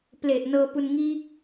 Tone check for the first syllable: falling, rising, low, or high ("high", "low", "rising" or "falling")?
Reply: low